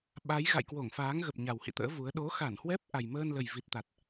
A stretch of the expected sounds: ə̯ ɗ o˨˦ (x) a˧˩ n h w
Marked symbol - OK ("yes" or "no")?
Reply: yes